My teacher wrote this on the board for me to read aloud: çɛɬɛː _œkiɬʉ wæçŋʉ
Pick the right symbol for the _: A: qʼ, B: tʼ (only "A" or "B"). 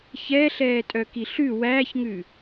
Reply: B